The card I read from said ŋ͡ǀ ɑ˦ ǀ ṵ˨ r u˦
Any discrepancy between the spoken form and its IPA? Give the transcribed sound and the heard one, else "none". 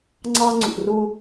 ǀ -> ŋ͡ǀ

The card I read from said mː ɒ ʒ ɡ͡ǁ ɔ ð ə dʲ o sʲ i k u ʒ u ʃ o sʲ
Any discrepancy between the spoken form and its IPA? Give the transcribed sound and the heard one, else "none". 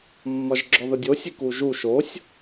none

